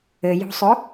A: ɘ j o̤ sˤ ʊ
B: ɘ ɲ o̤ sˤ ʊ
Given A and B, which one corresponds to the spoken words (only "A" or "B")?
A